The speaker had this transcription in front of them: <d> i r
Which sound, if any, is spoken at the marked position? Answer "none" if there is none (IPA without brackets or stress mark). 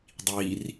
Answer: dˤ